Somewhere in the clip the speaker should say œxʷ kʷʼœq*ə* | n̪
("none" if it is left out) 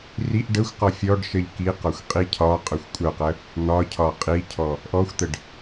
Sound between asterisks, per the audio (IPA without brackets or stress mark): ə